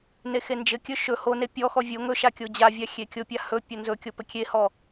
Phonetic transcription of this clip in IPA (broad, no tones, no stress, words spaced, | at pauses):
nexend͡ʒɘkʲɵ ʃɵ hone pʲɔxɔ vʲo ŋɵʃa kʲod͡ʑavʲa xʲekʲopʲa hɵ pʲonzɵkʲo pɘkʲehɔ